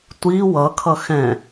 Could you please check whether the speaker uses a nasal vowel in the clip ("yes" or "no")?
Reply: yes